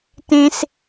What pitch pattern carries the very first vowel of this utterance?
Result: low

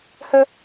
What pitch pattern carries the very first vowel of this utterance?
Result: high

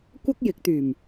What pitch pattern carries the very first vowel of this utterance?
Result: high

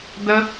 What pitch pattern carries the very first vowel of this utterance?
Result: high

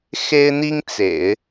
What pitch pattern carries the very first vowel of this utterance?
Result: high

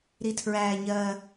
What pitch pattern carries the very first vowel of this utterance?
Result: high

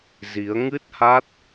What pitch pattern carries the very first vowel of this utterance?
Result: rising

